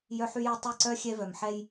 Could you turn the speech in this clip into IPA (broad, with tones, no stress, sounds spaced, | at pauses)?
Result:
j œ˦ ħ y˦ j œ˦ tˤ ɛ˦˨ ǀ œ˦ xʲ ɛ˦ v œ˨ m ħ ɛ˦ j